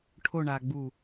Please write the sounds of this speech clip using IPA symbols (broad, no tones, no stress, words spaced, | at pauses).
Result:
ʈʰoɳaːɡ͡buː